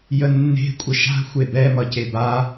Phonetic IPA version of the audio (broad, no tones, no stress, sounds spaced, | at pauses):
j ə nː e̤ kʷʼ ə ʃ a̤ xʷ e b ɛ m ʌ c e b a